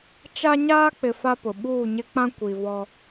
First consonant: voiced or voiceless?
voiceless